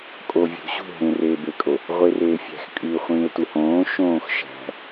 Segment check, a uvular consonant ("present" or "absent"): present